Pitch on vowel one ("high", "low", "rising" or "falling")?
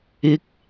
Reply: rising